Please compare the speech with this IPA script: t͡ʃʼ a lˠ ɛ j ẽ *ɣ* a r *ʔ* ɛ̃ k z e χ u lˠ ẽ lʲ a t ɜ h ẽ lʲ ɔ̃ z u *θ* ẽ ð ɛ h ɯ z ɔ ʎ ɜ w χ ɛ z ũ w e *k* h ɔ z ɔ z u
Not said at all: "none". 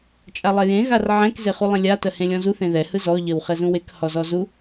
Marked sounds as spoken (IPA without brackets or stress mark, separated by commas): ɣ, ʕ, θ, k